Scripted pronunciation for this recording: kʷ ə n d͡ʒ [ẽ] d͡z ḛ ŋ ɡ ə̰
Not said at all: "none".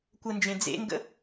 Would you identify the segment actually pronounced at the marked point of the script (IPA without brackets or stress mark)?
ẽ